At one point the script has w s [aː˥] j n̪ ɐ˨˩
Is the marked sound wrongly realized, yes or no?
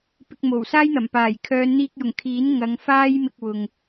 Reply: no